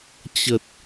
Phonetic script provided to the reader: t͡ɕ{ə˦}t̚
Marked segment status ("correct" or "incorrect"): incorrect